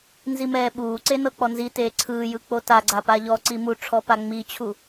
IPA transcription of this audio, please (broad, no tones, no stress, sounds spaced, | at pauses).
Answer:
n z i m ɛː ɓ uː ǀ e n ɤ k͡p ɔ n z i t eː ǀʰ ɯː j ɯ k͡p o t a ɡ͡ǀ a p a ʎ ɔ ǀ i m u ʈ͡ʂʰ ɔ p a ŋ͡m i t͡ɕʰ u